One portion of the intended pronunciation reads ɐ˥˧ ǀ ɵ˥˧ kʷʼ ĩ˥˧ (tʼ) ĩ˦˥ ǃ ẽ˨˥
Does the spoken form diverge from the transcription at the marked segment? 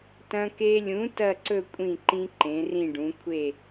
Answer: yes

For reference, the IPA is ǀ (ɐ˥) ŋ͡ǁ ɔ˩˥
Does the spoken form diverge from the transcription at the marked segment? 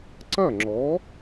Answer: yes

